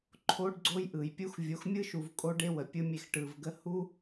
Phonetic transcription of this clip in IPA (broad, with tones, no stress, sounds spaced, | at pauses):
ǃʰ o˦ ɖ ɡ͡ǀ o˦ j ʔ ɯ˨ j pʲ u˦ x vʲ o˨˦ x mʲ ɯ˦ ʃ u˨ v kʼ o˦ ɖ e˦ w ə˨ pʲ ɯ˧ mʲ e˧ x ʈ ɯ˨ v ɡ ə˦ h u˦